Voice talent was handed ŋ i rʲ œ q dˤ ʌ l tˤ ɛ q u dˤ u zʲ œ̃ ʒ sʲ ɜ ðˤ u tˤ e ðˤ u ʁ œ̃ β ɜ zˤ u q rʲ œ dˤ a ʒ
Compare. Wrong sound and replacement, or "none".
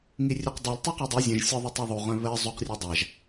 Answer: none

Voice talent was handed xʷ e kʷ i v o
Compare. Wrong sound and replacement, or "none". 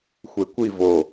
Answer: none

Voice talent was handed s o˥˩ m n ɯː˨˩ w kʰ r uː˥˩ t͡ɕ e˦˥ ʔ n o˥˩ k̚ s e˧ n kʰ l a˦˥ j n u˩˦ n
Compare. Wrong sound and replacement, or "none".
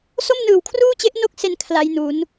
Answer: none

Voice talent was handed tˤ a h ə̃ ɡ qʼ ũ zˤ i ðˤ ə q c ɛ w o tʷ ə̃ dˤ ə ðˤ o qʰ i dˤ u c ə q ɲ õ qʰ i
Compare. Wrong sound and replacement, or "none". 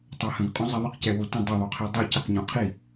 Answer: none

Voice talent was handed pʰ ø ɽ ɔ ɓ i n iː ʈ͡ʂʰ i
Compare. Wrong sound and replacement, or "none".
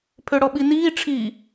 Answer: none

